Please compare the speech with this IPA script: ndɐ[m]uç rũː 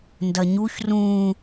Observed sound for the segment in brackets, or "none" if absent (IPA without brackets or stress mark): ɲ